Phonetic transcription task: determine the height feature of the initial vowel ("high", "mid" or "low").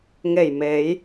mid